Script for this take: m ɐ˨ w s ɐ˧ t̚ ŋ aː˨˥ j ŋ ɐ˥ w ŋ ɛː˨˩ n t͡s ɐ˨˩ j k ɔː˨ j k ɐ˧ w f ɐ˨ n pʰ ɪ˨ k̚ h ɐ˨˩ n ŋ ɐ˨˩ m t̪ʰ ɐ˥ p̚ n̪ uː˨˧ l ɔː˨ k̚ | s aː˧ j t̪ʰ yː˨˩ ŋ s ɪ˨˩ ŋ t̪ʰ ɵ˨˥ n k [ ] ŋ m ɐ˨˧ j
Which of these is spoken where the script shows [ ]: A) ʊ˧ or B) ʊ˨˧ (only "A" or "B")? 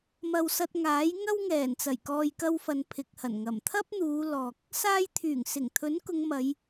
B